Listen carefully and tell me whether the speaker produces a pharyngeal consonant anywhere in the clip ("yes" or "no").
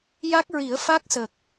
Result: no